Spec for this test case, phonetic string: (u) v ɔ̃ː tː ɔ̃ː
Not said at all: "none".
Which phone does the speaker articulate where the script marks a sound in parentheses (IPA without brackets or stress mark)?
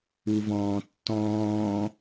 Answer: u